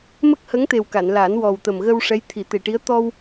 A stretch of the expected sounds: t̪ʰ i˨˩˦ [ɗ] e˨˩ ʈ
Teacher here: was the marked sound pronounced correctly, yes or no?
no